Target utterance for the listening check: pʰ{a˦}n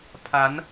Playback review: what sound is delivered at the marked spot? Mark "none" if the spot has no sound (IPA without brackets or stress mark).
a˨˦